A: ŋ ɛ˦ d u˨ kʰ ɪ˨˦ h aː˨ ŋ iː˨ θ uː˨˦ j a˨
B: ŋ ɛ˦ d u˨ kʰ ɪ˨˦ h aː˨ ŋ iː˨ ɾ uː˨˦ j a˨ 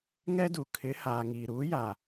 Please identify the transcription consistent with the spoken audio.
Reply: B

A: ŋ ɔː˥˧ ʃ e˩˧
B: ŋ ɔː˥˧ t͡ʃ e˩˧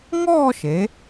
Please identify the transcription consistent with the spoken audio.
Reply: A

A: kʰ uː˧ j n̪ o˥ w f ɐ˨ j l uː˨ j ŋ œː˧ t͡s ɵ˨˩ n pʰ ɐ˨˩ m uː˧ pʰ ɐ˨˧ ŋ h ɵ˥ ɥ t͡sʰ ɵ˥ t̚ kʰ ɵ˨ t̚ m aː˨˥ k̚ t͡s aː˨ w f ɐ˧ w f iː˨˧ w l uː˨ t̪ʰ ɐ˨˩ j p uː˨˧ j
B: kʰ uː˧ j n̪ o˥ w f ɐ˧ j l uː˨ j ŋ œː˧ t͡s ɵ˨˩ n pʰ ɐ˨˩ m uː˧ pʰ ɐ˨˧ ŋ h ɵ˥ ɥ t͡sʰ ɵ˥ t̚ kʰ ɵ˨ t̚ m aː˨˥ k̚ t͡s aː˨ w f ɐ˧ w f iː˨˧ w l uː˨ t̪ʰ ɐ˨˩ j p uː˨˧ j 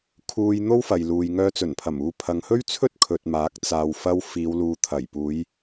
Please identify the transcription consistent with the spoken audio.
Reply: A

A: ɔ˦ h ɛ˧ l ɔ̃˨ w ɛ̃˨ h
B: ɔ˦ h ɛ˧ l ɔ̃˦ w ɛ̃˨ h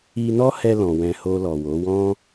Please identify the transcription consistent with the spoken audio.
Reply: A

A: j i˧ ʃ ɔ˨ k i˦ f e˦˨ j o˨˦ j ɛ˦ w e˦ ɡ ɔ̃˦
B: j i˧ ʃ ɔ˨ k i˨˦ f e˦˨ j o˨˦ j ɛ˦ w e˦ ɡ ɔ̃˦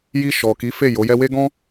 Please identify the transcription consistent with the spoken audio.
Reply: B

